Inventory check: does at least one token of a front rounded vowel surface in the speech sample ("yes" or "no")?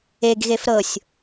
no